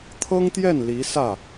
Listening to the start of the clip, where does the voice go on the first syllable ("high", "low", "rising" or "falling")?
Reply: high